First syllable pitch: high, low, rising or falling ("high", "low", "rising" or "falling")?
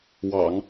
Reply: low